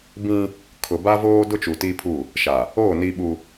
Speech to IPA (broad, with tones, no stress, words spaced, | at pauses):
bĩ˦ | kʰʊ˨ba˦voː˦ dʊ˦t͡ʃu˨ti˦pʰu˦˨ | ʃa˨ | o˦˨ ni˦ɓu˦